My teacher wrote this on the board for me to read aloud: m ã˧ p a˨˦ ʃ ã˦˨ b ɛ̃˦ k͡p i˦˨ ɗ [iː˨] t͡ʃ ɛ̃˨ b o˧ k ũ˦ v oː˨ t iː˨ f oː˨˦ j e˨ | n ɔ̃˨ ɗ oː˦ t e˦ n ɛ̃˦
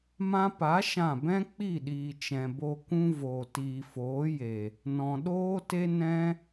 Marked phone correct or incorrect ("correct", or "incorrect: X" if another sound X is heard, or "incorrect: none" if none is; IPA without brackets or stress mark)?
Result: correct